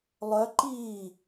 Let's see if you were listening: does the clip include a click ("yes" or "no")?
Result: yes